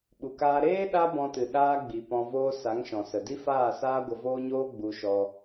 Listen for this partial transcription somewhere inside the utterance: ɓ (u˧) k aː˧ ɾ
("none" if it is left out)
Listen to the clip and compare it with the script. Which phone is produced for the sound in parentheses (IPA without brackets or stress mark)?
u˨